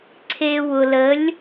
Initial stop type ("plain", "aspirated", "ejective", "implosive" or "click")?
click